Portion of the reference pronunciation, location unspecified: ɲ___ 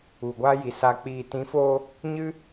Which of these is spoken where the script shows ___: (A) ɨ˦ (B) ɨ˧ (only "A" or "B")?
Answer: A